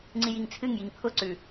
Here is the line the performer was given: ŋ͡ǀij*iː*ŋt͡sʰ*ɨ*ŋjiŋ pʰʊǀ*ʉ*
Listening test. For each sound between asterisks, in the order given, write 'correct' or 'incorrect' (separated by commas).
incorrect, correct, correct